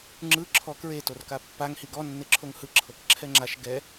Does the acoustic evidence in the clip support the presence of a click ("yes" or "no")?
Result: yes